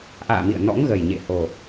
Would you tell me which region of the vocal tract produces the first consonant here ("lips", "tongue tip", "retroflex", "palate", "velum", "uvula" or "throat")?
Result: throat